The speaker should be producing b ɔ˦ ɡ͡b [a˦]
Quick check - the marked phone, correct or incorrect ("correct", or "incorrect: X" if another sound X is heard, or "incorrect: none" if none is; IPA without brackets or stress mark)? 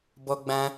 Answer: incorrect: ã˦